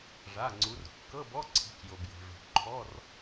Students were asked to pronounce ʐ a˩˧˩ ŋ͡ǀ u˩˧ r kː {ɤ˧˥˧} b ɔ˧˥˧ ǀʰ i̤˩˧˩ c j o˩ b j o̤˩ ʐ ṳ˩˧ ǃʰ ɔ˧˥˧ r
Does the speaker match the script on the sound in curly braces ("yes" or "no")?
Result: yes